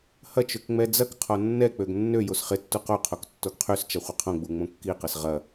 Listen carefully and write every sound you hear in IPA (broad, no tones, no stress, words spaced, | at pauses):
hɐt͡ʃøk ŋ͡mɛd͡zɐkqʰɔ nːɛk͡pøɡ nːø josχɪtːu qoqʰok tːoɡqʰyst͡ʃɐ χʷɪqʰõɡ͡bu ŋ͡mõkːiqɐs ʁɐ